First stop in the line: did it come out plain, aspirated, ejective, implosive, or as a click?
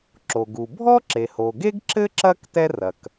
click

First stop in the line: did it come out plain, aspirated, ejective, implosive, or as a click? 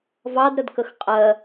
plain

